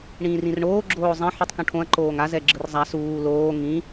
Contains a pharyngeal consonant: yes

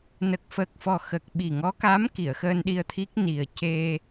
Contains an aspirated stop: yes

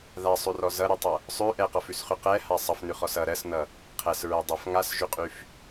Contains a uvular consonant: yes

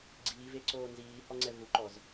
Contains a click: yes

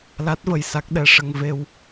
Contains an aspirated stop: no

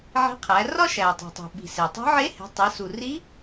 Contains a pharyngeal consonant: yes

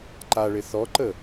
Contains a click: yes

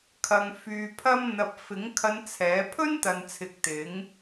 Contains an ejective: no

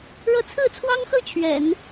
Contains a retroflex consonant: yes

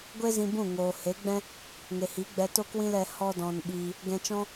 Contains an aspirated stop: no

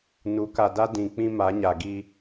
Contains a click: no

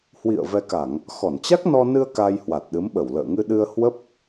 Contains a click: no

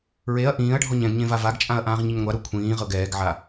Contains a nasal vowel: yes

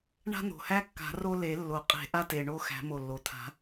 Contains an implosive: no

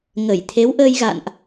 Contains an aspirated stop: yes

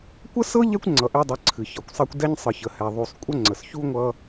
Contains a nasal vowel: no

